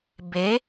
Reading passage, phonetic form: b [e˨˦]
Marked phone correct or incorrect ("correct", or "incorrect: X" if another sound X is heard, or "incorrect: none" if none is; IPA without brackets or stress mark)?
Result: correct